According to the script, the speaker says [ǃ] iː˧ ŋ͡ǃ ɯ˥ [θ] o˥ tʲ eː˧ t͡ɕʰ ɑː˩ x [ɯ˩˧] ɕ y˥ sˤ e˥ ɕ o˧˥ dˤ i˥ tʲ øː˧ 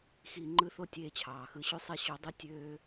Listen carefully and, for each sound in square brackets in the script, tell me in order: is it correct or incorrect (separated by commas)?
incorrect, correct, incorrect